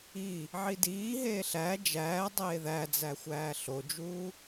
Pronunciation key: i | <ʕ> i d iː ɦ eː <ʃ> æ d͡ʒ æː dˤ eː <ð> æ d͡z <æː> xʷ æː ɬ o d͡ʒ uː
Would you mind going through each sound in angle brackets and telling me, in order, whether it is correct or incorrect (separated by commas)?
correct, incorrect, correct, incorrect